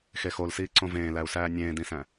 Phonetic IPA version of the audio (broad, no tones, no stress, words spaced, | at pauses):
xexolsiː ǀõvẽːlæu̯sæː nʲẽːdĩsæ̃